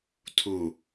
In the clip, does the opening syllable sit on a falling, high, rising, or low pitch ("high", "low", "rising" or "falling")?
low